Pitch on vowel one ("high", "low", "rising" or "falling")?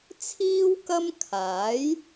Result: high